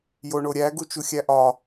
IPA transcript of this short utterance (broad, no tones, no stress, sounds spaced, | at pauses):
j o ɳ o ɾʲ æ ɡ u t͡ʃ u xʲ æ ʔ ɒ